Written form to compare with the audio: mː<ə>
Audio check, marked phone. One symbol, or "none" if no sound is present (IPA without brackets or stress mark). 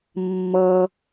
ʌ